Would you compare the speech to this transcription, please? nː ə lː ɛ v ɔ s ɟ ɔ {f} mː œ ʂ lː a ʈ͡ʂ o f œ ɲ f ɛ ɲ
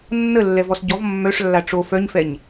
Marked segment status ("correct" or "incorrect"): incorrect